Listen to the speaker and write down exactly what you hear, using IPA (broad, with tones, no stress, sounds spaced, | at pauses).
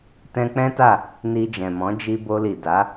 t ɛ̃˧ k͡p ɛ̃˦ t a˦˨ | n i˧ d͡ʒ ɛ̃˨ m ɔ̃˨˦ d͡ʒ i˧ b o˧ l i˨ d a˨˦